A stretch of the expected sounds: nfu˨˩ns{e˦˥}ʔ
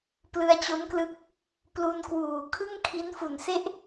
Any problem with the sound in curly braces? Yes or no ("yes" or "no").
yes